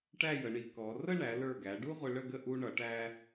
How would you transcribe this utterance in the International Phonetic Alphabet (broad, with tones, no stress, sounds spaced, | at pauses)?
ʈ æ˥˧ j ə˩˧ ɳ i˩˧ k ɔ˩˧ r ə˥˧ ɳ æ˩˧ l ə˞˧˩ ɡ æ˩˧ ɖ u˥ ʁʷ ɪ˧ ɭ ə˥˧ ɡ ə˥˧ ʔ u˧ ɳ ʌ˩˧ ʈ æ˧